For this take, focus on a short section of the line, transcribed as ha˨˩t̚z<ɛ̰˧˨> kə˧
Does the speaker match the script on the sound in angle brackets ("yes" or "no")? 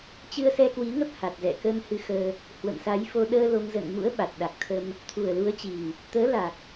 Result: yes